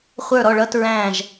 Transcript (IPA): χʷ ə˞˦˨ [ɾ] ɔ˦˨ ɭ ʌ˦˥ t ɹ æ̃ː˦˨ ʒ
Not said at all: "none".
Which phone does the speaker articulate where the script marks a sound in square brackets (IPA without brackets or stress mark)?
ɾ